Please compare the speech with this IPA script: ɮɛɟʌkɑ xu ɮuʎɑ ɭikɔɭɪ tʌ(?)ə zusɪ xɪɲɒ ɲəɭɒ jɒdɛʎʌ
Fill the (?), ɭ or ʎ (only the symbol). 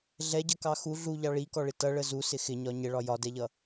ɭ